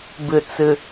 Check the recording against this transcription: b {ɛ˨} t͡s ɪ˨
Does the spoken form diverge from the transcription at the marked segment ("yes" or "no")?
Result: yes